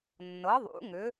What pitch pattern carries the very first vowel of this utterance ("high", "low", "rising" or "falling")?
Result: rising